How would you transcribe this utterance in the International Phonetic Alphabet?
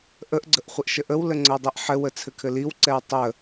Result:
ʔ ə ʔ ɡ͡ǀ ə ʔ χʷ ɘ ʔ ʃ ə ʔ ə w l ə ŋ͡ǀ ə w dˤ ɛ ʔ ħ ɘ w ə t͡sʰ ɘ kʰ ɘ l i w ǀ ɛ w tˤ ə

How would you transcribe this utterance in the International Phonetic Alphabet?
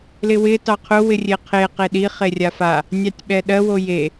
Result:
l ɪ w ɪ t ɑ qʰ ʊ w ɪ rʲ e qʰ e q e ɗ i χ e rʲ a f a | nʲ ɑ tʲ ɓ ɛ ɗ ɜ w o j e

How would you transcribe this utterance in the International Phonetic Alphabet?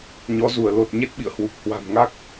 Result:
ɲ ɔ˨˦ z u˧˩ ə̯ l o˨˩ t̚ ɲ e˦˥ t̚ ɓ ḭ˧˨ ə̯ h w u˨˩ k̚ h w a̤˨˩ m ŋ a˦˥ k̚

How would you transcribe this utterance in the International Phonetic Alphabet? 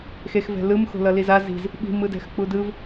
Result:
x e x v ɛ̤ l ɯ m x o̤ l ʌ l i z a z i̤ z | ɓ i̤ m ɯ d ɛ̤ x k͡p u d ɯ v

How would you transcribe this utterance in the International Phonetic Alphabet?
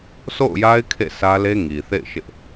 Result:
s o̰˦˨ ʊ̯ j a˦ ɪ̯ kʰ ḛ˦˨ sʰ ä˦ l e˦ ŋ i˨ θ ḛ˦˨ ɪ̯ ʃ ɪ˦ ʔ

